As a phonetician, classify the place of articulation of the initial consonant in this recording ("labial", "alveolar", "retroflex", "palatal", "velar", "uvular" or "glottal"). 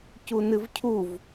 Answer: palatal